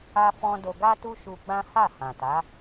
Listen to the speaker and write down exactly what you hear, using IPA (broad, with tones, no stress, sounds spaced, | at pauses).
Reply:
a˧ f ɔ̃˧ d o˧ ɡ a˦ t u˦ ʃ u˧ ɡ͡b ã˦ h a˦˨ h ã˨ t a˨˦